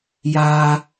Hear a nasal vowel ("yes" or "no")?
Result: no